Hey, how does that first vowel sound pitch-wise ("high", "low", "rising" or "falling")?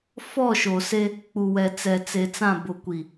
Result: falling